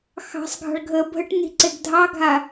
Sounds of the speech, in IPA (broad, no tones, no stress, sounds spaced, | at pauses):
x ɑ̤ sˤ ɡʱ ɑ̤ ɭ ɡʱ əː bʱ ə ʈ n i̤ ǀ e ɡ dʱ ɑ ɡʱ a